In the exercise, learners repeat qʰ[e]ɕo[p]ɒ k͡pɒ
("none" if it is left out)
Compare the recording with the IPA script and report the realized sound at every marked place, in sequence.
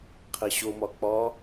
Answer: e, m

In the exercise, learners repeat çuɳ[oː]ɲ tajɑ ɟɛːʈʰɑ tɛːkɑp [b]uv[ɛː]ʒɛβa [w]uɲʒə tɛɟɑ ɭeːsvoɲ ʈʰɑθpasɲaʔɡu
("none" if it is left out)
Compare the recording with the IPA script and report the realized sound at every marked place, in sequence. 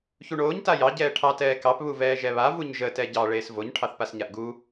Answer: oː, β, ɛː, v

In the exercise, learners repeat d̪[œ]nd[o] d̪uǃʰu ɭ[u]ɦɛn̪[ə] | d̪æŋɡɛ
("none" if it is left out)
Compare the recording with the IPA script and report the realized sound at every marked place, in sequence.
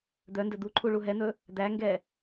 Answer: œ, ɵ, u, ɵ

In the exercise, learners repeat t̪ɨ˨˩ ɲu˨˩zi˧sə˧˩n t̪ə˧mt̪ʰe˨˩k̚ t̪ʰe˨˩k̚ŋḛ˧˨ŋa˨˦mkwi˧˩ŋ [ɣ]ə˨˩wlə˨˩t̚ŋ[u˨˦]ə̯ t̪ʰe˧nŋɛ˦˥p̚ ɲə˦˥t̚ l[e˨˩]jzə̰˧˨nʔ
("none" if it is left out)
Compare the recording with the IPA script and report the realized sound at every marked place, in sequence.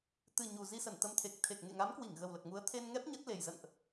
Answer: ɣ, u˨˦, e˨˩

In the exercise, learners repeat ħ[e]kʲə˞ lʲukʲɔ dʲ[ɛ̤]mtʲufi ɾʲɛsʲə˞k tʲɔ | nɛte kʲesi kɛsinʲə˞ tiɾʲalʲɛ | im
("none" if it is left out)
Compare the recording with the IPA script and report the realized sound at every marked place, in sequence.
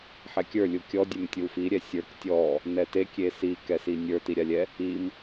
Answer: ɛ, ɛ

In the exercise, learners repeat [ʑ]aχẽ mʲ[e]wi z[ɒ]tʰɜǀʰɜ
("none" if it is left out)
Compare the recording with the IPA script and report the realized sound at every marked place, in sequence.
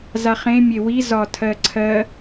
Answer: z, e, ɒ

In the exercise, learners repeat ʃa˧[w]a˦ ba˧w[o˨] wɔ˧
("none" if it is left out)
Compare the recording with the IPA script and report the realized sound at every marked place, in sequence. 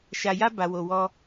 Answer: j, o˧

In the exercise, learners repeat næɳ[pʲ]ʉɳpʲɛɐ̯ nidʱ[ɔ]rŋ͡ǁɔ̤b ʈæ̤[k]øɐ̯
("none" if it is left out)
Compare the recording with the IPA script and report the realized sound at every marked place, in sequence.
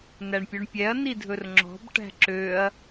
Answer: pʲ, ɵ, ǁ

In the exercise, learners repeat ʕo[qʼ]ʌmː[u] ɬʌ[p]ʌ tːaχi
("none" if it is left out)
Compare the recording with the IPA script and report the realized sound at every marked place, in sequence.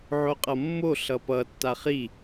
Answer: qʼ, o, p

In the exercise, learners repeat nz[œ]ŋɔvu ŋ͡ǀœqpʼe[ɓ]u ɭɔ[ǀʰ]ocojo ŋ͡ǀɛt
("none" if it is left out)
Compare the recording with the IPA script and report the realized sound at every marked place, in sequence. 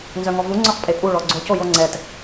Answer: œ, pʼ, ɡ͡ǀ

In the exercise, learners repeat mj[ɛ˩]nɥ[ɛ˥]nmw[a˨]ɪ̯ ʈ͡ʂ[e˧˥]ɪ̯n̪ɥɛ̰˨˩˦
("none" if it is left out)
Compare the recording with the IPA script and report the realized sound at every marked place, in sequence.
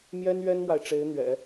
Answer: ɛ˥, ɛ˥, a˨, e˧˥

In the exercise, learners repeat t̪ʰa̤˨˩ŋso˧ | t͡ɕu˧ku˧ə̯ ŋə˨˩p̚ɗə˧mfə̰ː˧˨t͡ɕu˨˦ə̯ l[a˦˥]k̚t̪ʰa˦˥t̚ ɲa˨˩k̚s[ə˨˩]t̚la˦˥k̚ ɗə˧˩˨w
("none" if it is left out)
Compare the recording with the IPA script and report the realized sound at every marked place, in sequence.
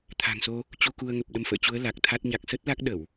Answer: a˨˩, ə˦˥

